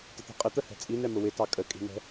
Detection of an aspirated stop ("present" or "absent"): absent